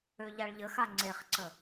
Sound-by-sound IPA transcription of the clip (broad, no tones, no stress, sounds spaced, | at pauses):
ø ʎ a ɭ ʎ ə x a ŋ͡ǀ e χ ǀ ə